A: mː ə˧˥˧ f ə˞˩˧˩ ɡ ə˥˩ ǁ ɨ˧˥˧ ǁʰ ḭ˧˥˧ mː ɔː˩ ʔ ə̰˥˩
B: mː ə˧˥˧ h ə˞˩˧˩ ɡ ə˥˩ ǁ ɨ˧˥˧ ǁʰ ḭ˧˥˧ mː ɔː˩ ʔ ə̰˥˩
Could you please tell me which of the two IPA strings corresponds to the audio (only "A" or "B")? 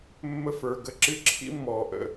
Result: A